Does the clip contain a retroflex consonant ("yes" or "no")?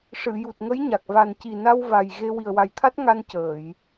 yes